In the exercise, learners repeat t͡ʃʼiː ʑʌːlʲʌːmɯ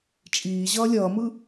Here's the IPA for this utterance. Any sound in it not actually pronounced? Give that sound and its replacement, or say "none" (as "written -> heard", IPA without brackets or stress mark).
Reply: none